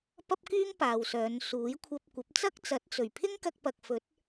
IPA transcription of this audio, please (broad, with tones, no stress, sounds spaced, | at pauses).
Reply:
p ɐ˥ p̚ k yː˥ ŋ p aː˨ w s œː˨˧ n s uː˨˥ j kʷʰ ɐ˧ p̚ kʷ ɐ˨˥ p̚ t͡s ɐ˥ k̚ t͡s ɐ˨˥ t̚ t͡s ɵ˨˩ ɥ pʰ ɪ˥ ŋ k ɐ˧ k̚ p ɐ˨ k̚ f ɵ˨˥ t̚